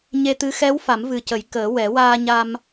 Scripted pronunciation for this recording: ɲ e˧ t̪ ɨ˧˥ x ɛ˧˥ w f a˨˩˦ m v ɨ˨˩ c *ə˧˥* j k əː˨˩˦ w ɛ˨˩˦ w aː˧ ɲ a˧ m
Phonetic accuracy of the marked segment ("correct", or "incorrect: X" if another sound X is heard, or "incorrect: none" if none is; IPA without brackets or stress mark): incorrect: ə˨˩˦